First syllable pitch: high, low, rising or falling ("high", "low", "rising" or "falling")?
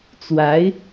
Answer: rising